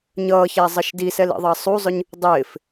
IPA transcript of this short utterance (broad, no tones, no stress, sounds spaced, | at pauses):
ɲ ʌː ç æ zˤ ʌ ʃ d i s ɛ l ḭ ðˤ ɑ sˤ u zˤ ʊ ɲ | dˤ ɪː f